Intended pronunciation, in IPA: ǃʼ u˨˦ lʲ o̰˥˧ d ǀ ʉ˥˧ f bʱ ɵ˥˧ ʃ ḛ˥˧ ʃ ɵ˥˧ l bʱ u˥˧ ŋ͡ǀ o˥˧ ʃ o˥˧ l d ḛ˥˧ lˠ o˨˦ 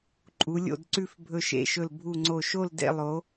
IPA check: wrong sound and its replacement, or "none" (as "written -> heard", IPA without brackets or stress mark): none